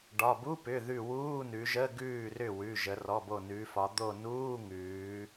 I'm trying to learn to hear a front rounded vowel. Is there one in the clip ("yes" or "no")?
yes